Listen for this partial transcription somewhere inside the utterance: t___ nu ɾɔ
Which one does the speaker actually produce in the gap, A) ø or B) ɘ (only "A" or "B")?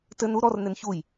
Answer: B